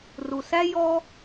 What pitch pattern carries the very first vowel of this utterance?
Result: low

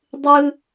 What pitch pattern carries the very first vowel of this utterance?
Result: high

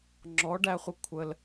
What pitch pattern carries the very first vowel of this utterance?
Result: rising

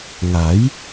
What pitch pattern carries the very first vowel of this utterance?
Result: rising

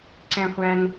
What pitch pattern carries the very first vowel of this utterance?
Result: high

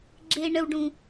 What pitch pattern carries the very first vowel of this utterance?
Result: high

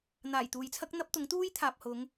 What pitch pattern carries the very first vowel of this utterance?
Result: low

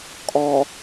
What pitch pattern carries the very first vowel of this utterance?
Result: low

